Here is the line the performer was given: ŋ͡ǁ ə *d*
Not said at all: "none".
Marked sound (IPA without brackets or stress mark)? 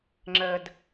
d